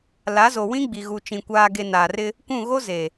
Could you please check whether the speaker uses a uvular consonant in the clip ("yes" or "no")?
no